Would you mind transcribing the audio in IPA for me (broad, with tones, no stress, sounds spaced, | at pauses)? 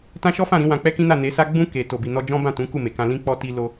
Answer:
t ã˦ ʃ ɔ˦ f ã˦˨ ɾ ĩ˨˦ w ã˧ k͡p ɛ˦ k ĩ˦ n a˦˨ n e˨˦ s a˦ ɡ͡b ũ˦ k e˧ t o˨ b i˨ n ɔ˧ d͡ʒ ɔ̃˦ b ã˦˨ t ũ˨˦ k u˦˨ m e˨ k ã˧ l ĩ˦ k͡p ɔ˦ t i˦ l o˧